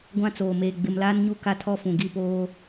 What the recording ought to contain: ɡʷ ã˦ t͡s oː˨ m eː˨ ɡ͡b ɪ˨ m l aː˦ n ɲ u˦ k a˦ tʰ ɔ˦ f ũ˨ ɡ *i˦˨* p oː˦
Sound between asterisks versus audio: incorrect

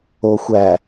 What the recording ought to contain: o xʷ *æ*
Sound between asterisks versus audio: correct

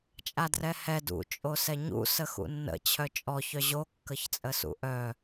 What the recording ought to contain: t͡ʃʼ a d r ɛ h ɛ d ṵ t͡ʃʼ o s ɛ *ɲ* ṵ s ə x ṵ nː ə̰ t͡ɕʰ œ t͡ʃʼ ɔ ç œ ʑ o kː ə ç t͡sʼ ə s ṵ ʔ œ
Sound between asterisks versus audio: correct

